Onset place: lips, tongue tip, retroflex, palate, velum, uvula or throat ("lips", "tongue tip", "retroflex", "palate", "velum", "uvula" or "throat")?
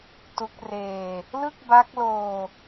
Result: tongue tip